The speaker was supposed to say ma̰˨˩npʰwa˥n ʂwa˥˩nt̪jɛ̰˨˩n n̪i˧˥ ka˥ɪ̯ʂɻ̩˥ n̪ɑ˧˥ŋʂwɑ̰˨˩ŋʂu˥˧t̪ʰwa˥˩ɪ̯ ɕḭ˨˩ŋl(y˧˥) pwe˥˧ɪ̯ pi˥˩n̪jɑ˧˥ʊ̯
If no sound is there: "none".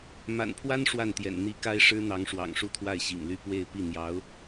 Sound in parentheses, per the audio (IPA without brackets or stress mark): y˥˧